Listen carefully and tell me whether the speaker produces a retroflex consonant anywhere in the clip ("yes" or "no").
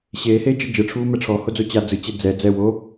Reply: yes